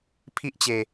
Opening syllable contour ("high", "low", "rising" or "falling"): high